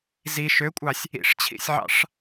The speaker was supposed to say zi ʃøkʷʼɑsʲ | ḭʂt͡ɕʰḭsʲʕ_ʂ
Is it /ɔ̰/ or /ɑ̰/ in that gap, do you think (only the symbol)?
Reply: ɑ̰